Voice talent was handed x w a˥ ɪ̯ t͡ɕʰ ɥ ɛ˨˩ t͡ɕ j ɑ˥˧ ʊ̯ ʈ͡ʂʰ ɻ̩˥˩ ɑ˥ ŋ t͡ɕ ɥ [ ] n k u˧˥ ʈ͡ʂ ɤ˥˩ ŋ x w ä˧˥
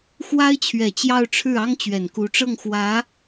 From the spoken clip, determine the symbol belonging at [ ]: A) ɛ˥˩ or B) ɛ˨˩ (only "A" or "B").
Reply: B